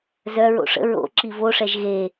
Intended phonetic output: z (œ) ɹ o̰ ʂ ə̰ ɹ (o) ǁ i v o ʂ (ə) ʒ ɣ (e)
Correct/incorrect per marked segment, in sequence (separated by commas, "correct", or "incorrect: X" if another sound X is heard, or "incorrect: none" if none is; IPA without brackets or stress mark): correct, incorrect: o̰, incorrect: ɛ, correct